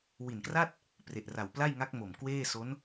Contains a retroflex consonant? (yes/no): no